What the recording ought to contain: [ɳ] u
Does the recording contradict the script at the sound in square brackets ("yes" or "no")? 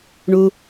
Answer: no